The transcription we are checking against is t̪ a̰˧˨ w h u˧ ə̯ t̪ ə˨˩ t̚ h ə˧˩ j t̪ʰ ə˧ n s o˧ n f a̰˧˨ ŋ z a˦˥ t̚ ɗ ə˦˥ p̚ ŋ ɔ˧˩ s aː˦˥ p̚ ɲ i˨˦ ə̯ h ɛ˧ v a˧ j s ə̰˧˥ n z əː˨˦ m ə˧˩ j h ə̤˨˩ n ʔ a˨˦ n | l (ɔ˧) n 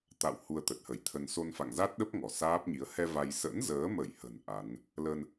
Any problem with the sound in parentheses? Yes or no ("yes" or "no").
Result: yes